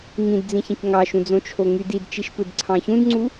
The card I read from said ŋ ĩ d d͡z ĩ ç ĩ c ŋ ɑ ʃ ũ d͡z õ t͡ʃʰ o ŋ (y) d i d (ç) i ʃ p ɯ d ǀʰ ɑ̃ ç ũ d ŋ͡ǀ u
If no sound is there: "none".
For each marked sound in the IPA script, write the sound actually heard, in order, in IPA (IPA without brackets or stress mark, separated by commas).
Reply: y, t͡ʃ